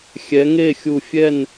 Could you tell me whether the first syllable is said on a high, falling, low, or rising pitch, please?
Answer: rising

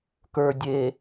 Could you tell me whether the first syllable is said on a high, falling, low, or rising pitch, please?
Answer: low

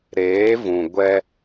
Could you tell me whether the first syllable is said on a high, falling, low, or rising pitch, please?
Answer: rising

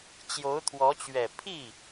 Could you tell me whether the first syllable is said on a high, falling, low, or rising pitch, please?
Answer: rising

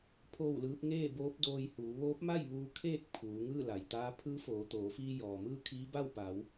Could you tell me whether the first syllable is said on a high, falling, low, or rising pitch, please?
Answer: falling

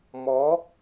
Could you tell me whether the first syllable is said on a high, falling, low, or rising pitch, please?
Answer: rising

